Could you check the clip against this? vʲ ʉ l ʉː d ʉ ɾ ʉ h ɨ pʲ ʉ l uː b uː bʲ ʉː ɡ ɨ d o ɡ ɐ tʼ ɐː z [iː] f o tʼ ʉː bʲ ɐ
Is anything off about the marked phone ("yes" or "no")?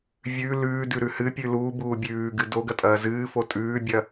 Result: yes